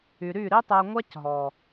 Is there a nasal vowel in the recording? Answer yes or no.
no